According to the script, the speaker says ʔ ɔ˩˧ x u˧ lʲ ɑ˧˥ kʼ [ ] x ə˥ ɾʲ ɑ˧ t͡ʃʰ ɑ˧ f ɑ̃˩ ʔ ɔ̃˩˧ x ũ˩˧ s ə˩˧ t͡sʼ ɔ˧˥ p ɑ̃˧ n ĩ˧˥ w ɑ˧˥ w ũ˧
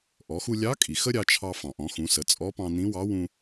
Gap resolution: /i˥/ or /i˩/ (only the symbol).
i˩